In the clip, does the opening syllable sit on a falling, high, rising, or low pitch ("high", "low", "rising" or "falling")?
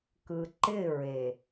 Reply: low